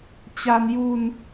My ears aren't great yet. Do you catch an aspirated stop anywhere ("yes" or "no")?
no